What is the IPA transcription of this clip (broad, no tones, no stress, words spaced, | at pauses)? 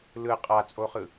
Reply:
lɯ qʼat͡sʼoχɯ